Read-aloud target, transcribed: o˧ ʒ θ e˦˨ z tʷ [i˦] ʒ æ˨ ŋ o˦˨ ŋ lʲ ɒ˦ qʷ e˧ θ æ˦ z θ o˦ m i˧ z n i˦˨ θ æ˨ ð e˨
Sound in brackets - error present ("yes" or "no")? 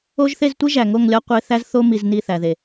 no